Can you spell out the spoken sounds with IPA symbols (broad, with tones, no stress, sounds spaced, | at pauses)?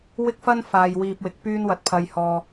w ɪ˥ k̚ f ɐ˥ n f aː˨ j w iː˧ p̚ w ɪ˨˥ k̚ p yː˥ n w ɐ˧ t̚ pʰ ɐ˧ j h ɔː˧